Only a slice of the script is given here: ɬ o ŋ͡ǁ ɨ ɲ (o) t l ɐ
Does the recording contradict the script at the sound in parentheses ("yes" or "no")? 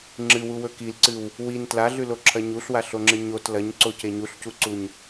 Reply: no